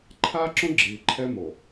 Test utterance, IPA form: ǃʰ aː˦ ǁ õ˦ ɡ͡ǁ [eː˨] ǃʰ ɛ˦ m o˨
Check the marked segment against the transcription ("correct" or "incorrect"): incorrect